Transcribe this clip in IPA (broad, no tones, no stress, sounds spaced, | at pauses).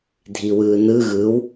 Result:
dʱ i w ɯː n ɯ ɣ ɯ w